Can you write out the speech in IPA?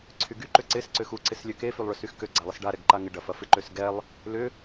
ǀʰ y ɡ y ǃ ʏ ǀ ɪ s ǀ ʏ x u ǀ ɪ s lʲ ø k e f y lˠ ɭ ʏ s y x k ø ɡ͡ǀ a lˠ ɪ s ɖ a ɾ ɛ ɡ ǃ a ŋ ɪ ɖ ɐ f ɐ f ɪ ǃ ø s ɡ ɛ lˠ | l ʏ

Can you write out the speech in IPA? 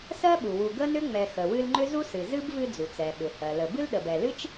s ɜ˥ ɓ u˩ w u˨ ɡ ə˥ n ʏ˥ ŋ͡m ɛ˨ x ə˩ w ɨ˦ l ŋ͡ǃ ʏ˥ z u˥ s ɨ˨ z ɨ˥ b v ɨ˦ d͡z u˩ t͡s ɛ˩ ɓ ʏ˩ h ɜ˩ l ə˨ b ɨ˥ l ɗ ə˨ b ɛ˨ l ɨ˥ t͡ʃ

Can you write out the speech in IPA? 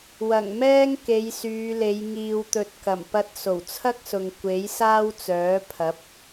w ɐ˨˩ ŋ m ɛː˥ ŋ k e˨˧ j s yː˨˧ l e˨˧ j ŋ iː˨ w t̪ ɵ˨˥ t̚ k ɐ˨˩ m p ɐ˧ t̚ s o˨˩ w t͡sʰ ɐ˥ k̚ s ʊ˨ ŋ kʷ e˨˥ j s aː˥ w t͡s œː˨˥ pʰ ɐ˨˥ p̚

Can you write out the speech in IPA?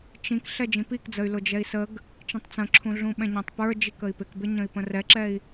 t͡ʃ ĩ k ɬ ɛ d͡ʒ ĩ p i k d͡z ə y̯ l ʊ d͡ʒ ɛ i̯ s ə ɡ | t͡ʃ ĩ tˤ t͡s ə̃ ǁʰ ũ ɮ ũ ɓ ɛ̃ ɲ ɛ̃ tˤ p ə˞ d͡ʒ i k ə i̯ p ɪ k b ɪ ɲ ə̃ i̯ p ə̃ r ɛ ǁ ɛ i̯

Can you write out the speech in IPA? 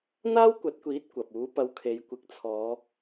n̪ aː˥ w kʷ ɐ˨˥ t̚ kʷ iː˨˥ t̚ kʷ ɐ˨ p̚ uː˨˥ p ɐ˧ w kʰ e˨˧ j kʷ ɪ˨˥ k̚ t͡sʰ ɔː˨˧

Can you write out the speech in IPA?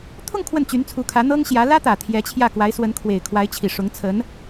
t̪ʰ ʊ˥˧ ŋ kʰ w ə˥˩ n t͡ɕ y˧˥ n t͡sʰ u˧˥ kʰ ä˧˥ n̪ ɤ˥ ŋ ɕ j ä˧˥ l ä˥ t̪ ä˨˩ t̪ʰ j ɛ˧˥ t͡ɕʰ j ä˥˩ k w a˧˥ ɪ̯ s w ə˧˥ n kʰ w e˨˩ ɪ̯ kʰ w a˧˥ ɪ̯ t͡ɕʰ i˨˩ ʂ ʊ˧˥ ŋ t͡sʰ ə˧˥ n

